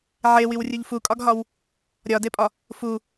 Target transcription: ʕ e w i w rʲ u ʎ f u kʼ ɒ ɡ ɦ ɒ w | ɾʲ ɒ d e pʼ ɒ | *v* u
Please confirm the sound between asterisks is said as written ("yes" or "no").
no